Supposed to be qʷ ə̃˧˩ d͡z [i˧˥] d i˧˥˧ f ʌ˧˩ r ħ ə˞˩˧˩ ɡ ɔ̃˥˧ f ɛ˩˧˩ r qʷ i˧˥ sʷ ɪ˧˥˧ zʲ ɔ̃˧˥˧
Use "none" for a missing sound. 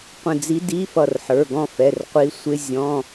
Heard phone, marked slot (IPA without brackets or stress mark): i˧˥